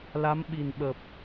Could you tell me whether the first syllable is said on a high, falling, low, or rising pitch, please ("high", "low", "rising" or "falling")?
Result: rising